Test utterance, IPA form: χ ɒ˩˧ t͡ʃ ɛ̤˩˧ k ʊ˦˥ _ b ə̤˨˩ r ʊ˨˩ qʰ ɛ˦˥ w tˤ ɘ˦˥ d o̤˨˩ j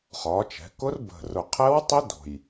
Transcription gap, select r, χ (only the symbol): r